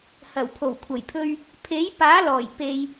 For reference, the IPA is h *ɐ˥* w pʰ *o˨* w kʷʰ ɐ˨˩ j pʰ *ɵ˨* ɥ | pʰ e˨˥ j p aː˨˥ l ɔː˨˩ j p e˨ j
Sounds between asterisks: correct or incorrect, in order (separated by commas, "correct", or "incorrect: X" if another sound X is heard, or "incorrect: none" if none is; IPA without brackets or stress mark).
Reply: incorrect: ɐ˨˩, incorrect: o˨˩, incorrect: ɵ˧